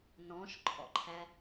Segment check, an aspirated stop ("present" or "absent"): present